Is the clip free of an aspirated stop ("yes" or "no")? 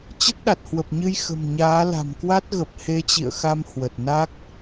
yes